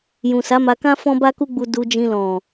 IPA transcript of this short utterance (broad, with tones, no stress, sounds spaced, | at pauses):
j ũ˨ s a˨˦ m a˧ k ã˦ f ɔ̃˦ b a˦ k u˦ ɡ͡b u˧ d u˧ d͡ʒ ĩ˧ l ɔ̃˨